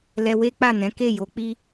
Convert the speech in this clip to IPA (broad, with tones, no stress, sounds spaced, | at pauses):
l ɛ˧ w e˦ k͡p a˦˨ n ɛ̃˨˦ k e˦˨ j o˨˦ k͡p i˦